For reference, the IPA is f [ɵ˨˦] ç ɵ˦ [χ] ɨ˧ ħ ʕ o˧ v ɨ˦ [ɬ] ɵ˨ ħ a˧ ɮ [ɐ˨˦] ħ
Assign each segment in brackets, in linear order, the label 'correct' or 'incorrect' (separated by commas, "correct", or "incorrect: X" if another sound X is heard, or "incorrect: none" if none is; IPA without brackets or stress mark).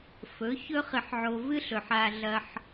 correct, correct, correct, incorrect: ɐ˧